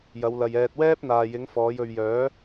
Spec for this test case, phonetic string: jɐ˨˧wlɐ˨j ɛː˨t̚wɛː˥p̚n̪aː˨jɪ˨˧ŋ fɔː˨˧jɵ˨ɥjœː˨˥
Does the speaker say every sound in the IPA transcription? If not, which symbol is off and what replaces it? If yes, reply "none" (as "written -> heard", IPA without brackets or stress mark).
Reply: none